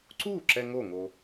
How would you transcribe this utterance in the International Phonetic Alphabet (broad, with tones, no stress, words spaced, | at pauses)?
ǀuː˥˨ǁɛ˧ ŋo˥˨ŋo˧